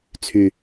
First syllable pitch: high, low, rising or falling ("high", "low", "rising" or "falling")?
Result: low